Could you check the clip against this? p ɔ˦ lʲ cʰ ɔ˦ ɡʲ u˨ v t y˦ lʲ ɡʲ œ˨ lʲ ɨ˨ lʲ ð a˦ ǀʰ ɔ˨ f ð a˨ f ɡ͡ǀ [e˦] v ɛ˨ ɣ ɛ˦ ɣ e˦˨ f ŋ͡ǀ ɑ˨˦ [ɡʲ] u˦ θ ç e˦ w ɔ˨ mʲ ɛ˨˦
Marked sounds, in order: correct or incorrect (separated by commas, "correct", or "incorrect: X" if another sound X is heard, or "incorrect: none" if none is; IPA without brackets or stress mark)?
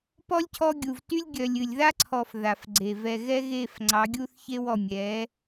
incorrect: e˨, correct